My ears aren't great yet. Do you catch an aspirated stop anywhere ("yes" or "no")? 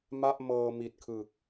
yes